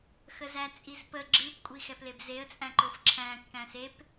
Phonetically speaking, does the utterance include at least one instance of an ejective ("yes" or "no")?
yes